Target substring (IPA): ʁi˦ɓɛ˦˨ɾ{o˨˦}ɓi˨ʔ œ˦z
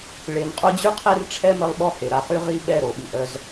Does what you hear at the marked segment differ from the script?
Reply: yes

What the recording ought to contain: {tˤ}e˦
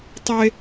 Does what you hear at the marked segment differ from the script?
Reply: no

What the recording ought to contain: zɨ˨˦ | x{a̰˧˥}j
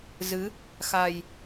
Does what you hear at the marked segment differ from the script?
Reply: yes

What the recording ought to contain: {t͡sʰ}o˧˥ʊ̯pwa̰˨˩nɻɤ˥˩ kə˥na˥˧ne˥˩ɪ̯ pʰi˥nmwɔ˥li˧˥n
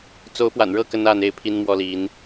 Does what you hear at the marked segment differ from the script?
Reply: yes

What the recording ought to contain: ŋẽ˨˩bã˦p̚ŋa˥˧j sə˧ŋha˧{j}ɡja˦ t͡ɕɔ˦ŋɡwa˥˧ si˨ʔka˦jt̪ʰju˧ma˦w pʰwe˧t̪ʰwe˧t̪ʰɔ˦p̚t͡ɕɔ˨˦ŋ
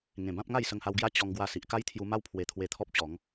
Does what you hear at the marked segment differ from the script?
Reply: yes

